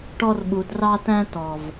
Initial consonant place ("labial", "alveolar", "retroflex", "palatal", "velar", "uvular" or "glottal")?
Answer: retroflex